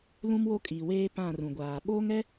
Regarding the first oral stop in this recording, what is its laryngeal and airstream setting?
ejective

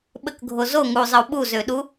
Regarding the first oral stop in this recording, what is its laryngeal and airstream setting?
implosive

